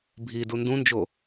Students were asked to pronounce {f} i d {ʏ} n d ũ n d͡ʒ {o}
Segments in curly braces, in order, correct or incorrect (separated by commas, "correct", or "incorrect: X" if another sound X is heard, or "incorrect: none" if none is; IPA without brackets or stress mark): incorrect: bʱ, incorrect: u, correct